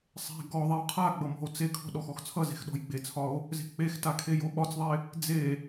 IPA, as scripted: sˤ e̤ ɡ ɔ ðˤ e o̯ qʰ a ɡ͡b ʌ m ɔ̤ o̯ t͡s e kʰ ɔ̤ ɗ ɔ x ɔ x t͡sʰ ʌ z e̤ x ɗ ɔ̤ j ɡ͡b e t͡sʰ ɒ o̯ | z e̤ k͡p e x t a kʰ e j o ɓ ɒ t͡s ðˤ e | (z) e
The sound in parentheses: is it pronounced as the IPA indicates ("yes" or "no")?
no